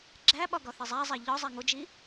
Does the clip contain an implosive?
yes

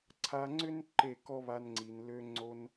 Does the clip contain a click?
yes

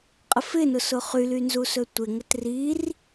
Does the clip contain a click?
no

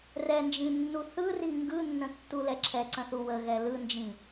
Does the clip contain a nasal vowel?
yes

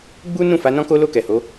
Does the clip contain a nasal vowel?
yes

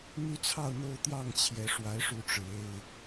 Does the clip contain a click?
no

